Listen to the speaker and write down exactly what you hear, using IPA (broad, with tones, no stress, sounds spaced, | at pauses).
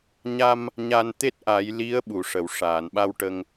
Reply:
ɲ a˧ m | ɲ a˧ n t̪ e˦˥ t̚ ʔ a˨˩˦ j l i˧˥ ə̯ ɓ u˨˩˨ ʂ ə˨˩˨ w ʂ aː˨˩˨ n ɓ a˧ w ʈ ə˧ ŋ